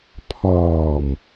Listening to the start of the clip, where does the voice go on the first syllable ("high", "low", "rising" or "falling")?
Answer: low